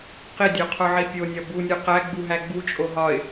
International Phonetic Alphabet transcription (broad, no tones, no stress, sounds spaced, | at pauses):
q i dʲ o qʰ o ʕ i pʲ o nʲ ɒ b u nʲ o q æ ɡ͡b u ɦ æ ɡ͡b u t͡ʃʼ o ɦ ɒ ɪ̯